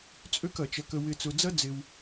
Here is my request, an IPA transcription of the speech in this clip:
t͡sʼø˥˧kɐ˩˧t͡ʃɐ˧ kə˧wɪ˧t͡sʊ˧d͡zɐ˥ d͡zɪ˧w

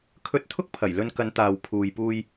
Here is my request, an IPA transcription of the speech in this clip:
kʰɵ˧t̚t̪ʰʊ˥k̚pʰɐ˨˩j lɵ˧nkɐ˨˧nt̪aː˨w pʰuː˨jpuː˧j

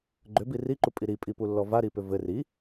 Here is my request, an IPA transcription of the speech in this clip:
ɡ͡ǃʏbi riǃupʼi ɾipʼipulːɔ vaɾipʏ vɘ ri

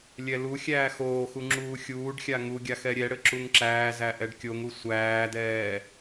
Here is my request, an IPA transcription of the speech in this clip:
lʲɛluxʲæː xoːxu ŋ͡ǁuːxʲuːɖxʲa ŋuɡʲa xɛɾʲɛɽɘ ǁuŋǁæːzæ ʔɛɖkʲoŋu sʷæːdɛː

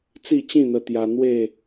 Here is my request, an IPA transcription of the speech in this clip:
t͡si˥˧t͡ɕĩ˥˧n̪ə˧t̪ja˧ n̪we˥˧

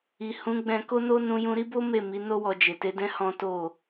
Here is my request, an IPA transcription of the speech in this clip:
i˨ hũ˨˦ɡ͡bɛ̃˧ko˦no˦ nũ˧jũ˧ɾi˦bo˦ me˦˨ mi˨˦no˦wɔ˧ d͡ʒe˨te˨˦dɛ̃˦ hɔ̃˦to˦˨

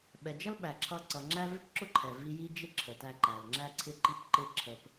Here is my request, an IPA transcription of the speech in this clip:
ɓɛ˩d͡ʒʌ˥l ɓæ˩ǁʰʌ˧ǀʌ˩ ŋ͡ǁæ˥ vɪ˥pǁʊ˥ ǃʰɛ˩vi˧ ji˥d͡ʒɪ˥ ǁʰə˩tæ˧ ǃæ˩lŋ͡ǁæ˥ǀʰɪ˥ ǃi˥pǃɪ˥ ǁʰə˧p

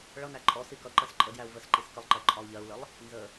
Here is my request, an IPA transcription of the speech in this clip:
ɭʌnæ ǃʼɔ sikʌǃɜs ǃʼədjæu̯ vəsǃis kəlˠǃɜ ǃʼɒu̯ʎɜu̯ləlˠ | nzə

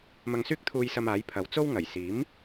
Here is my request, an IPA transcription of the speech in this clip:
mɐ˧ŋsyː˥k̚t̪ʰuː˧jsɐ˧m aː˨˥jpʰɐ˨˧w t͡so˥w ŋɐ˨˩jsiː˨˥m

